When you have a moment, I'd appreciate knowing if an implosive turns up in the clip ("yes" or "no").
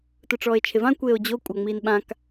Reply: yes